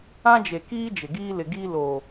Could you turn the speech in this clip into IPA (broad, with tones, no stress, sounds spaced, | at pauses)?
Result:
ã˦ d͡ʒ e˨ k iː˦ d͡ʒ ɪ˨ ɡ iː˦ l ɪ˨ ɡ iː˦ l oː˨